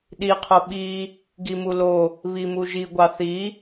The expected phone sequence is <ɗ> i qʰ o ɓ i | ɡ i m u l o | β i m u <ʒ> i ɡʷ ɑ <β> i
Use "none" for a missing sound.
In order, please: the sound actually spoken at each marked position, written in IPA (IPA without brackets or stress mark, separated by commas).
ɗ, ʒ, θ